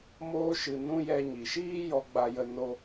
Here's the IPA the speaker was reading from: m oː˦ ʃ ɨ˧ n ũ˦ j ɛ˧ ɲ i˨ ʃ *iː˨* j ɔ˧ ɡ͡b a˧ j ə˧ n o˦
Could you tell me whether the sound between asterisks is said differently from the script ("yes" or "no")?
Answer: yes